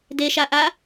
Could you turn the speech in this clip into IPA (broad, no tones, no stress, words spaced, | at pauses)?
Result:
deʃaʔa